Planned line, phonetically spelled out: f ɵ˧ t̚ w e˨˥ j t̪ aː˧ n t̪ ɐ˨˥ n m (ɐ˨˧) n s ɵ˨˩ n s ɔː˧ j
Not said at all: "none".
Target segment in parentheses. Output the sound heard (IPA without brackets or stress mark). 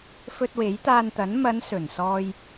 ɐ˨˧